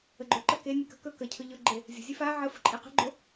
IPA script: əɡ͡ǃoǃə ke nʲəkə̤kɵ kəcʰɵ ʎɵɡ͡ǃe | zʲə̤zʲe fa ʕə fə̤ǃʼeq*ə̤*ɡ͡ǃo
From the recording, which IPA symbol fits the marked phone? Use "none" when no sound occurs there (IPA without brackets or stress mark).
ə̤